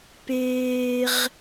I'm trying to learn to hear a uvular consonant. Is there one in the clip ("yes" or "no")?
yes